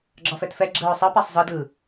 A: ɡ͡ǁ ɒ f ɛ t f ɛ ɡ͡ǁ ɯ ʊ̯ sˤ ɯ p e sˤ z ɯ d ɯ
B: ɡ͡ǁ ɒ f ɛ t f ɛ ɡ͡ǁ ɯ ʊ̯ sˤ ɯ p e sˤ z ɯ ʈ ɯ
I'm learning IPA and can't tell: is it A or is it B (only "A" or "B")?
A